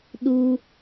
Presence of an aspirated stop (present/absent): absent